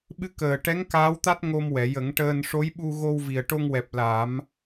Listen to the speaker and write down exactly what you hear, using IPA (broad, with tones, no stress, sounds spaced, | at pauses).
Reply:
ɓ ɨ˧˥ k əː˨˩ ʈ ɛ˧˥ ŋ k aː˧˥ w t̪ a˦˥ t̚ ŋ o˧ m w ɛ˨˩˨ j ə˨˩˦ ŋ ʈ əː˧ n ʂ o˧˥ j ɓ u˧ ɣ o˧ w v i˨˩ ə̯ ʈ o˧ ŋ w ɛ˨˩ p̚ l a˨˩˦ m